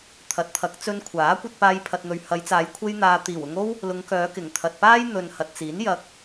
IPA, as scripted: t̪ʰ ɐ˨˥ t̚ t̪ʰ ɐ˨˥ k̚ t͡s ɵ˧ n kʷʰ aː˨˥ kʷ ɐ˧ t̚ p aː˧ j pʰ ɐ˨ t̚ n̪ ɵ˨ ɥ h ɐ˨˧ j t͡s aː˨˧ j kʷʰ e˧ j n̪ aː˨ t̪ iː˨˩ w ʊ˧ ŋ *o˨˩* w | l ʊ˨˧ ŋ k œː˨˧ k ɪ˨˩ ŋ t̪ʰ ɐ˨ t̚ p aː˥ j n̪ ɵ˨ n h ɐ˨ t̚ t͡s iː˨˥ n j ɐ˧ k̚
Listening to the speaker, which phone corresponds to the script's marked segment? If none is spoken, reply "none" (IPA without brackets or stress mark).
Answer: o˥